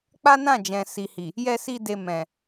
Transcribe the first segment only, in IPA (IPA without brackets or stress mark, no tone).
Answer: k͡p